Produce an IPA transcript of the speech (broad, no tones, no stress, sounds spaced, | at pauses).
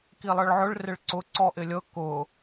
k i lˠ ɤ ɭ ʕ ʊ ɭ r ɪ ɭ ǀ ʊ ǀ ɔ ʔ ɪ lʲ ɤ k ʊ